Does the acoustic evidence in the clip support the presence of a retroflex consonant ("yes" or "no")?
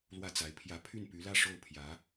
yes